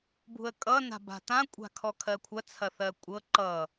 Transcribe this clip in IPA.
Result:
b ṳ ə̯ kʼ ʌ n a̤ b a̤ t ã kʷʼ a̤ kʰ ɔ kʰ ɜ kʷʰ ɐ t͡sʰ ɐ θ ɜ kʷʼ ɤ ǃ ʌ

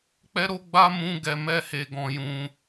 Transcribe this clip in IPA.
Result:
k͡p ɛ˦ ɾ o˦ ɡ͡b a˦ m ũ˦ ɡ ɛ˧ m ɛ˦ h e˧ ɡ ɔ̃˧ j ũ˧

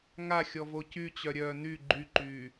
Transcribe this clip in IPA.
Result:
ŋ a xʲ ɔ v o c y t͡ɕ œ ɾʲ œː n y ɡ͡ǃ y ǃ yː

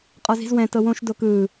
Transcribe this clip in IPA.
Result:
qʼ ɔ z i̤ z w ɛ̃ t ɤ w õ ʃ d o k ɯː

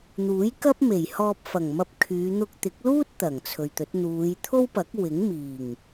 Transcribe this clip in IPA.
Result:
n̪ uː˨˥ j k ɐ˥ p̚ m e˨˩ j h ɔː˧ p̚ f ɐ˨˩ ŋ m ɐ˧ p̚ kʰ yː˨˧ n̪ ʊ˧ k̚ t̪ ɪ˨˥ k̚ l uː˥ t̚ t̪ ɐ˨˩ ŋ t͡sʰ ɵ˨ ɥ t̪ ɵ˨˥ t̚ n̪ uː˨˧ j t̪ʰ o˥ w p ɐ˨˥ k̚ w ɪ˨˥ ŋ m iː˨˩ ŋ

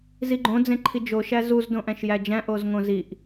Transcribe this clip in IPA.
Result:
z i ɡ͡ǃ õ d͡z ẽ ǃʰ i d͡ʒ o ʃ æ z u z d õ ʔ æ̃ ʃ j æ d͡ʒ æ̃ ʔ o z ŋ õ z i ʔ

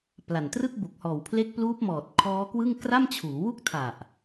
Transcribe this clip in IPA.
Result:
p l a˨˩ n t r ɯ˥˩ k̚ b u˨˩ k̚ h ɔː˨˩ w pʰ l e˦˥ k̚ p l uː˦˥ p̚ m ɔː˨˩ t̚ kʰ ɔː˦˥ k w ɯ˥˩ ŋ k r a˥˩ m t͡ɕʰ uː˩˦ w u˥˩ k̚ tʰ a˨˩ ʔ

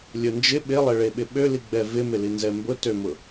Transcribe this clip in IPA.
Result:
lʲ ʊ n d͡ʒ ɪ ɓ ɪ lˠ ɛ ɭ e ɓ ɪ ɓ ø l i ɡ͡b ɛ v ɪ m ɪ l i n z ɛ m b ʊ t ø m ʊ

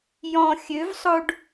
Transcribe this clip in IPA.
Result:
j ɔ̃ xʲ ø v sˤ o ɖ

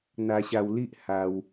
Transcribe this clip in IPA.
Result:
n̪ a˦ ɕ a˦ w l i˦ ʔ h a˦ w

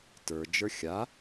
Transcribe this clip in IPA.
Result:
t ə˞ d͡ʒ ə˞ xʲ a

